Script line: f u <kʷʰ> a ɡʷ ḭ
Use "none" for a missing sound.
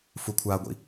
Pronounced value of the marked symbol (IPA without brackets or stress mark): kʷʰ